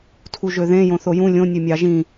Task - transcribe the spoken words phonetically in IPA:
tʰ u ʒ ø ð ẽ j õ θ o j ũ lʲ õ nʲ ø mʲ ɑ ʒ ĩ

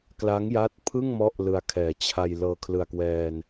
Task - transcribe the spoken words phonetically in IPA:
k l a˦˥ ŋ j a˦˥ t̚ pʰ ɯ˥˩ ŋ m ɔ˦˥ ʔ l ɯ˧ a̯ kʰ ɛː˨˩ t͡ɕʰ a˧ j l ɤː˧ kʰ l ɯ˨˩ a̯ k w ɛː˧ n

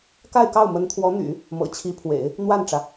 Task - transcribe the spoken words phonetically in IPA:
k a˥˧ ɪ̯ k ɑ˥˩ ʊ̯ m ə˧˥ n t̪ʰ w ɔ˧˥ n̪ y̰˨˩˦ | m ɤ̰˨˩ t͡ɕʰ i˧˥ pʰ w ḛ˨˩˦ ɪ̯ | n̪ w a˥˩ n ʈ͡ʂ ä˩

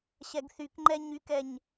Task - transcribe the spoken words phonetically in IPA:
ɕ ɛ ɡ θ y k ŋ͡ǃ ɛ ɲ y k ɛ ɲ

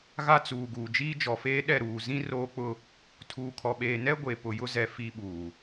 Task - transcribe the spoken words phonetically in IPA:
ɣ a˦ t͡s uː˨ ɡ uː˨ d͡ʒ iː˦ d͡ʒ ɔ˨ f eː˦ ɗ ɛ˦˨ ɾ uː˨ z ĩ˦ r oː˦ k͡p ʊ˦ | tʰ uː˨ kʰ ɔ˨ ɓ eː˨ n ɛ˦ ɡʷ e˨ p ʊ˨ j ʊ˦ z ɛ˨ f i˦ ɓ uː˨

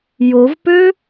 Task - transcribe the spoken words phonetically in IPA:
j o v p ø

